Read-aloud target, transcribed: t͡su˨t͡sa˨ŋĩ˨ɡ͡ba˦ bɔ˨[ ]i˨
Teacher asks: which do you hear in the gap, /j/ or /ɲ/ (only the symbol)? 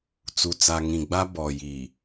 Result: j